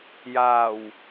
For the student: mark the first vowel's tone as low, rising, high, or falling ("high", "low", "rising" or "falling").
low